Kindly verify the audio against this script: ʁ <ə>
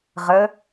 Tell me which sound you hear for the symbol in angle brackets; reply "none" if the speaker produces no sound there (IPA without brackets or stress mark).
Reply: ə